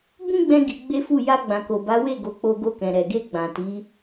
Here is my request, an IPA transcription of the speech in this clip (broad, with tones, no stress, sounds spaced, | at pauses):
b ũ˦ ɡ͡b ɛ̃˧ ɡ i˧ ɡ͡b e˦ f u˦˨ j a˧ ɡ͡b ã˨ k o˨ b a˨˦ w e˦˨ ɡ o˨˦ k͡p o˧ ɡ o˧ k ɛ̃˨ ɾ ɛ˨ ɡ e˧ ɡ͡b ã˨ t i˨˦